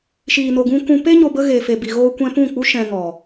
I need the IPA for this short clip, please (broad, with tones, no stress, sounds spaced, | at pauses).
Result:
ʃ iː˨ n o˨ ɡ ũ˧ k ũ˧ p e˦ ɲ o˧ b ə˦ ɣ e˨ f e˨ b i˨ ɣ oː˧ kʷ ɛ̃˧ p ũ˦˨ k͡p u˦ ʃ ɛ̃˧ ŋ ɔ˨